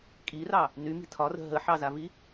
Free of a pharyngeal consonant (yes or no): no